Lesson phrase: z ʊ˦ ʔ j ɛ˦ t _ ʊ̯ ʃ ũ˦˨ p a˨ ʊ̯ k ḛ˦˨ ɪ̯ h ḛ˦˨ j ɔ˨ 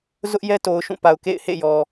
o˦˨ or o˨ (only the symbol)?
o˨